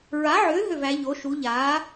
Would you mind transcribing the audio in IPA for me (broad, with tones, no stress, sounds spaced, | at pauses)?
ɹ a˩˥ ʕ ʏː˩˥ ɦ ø˥˩ v æ˩˥ ʎ o˩˥ ʃ u˩˥ ʎ aː˩˥